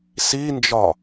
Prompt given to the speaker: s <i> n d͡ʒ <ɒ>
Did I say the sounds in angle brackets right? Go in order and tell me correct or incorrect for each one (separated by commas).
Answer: correct, correct